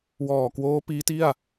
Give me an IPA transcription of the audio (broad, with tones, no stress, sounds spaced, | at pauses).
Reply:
w ɔː˨˩ k w oː˦˥ p iː˦˥ t i˥˩ a̯